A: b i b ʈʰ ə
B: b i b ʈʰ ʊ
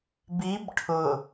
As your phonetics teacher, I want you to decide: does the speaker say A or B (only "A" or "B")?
B